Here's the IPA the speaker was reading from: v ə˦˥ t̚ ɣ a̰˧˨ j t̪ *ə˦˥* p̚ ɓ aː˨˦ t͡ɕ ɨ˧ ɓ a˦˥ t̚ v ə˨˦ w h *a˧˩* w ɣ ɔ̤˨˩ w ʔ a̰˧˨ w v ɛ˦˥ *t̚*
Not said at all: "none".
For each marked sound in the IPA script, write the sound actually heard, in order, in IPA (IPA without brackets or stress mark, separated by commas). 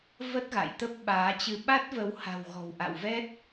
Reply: ə˦˥, a̤˨˩, t̚